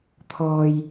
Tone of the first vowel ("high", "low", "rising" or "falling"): low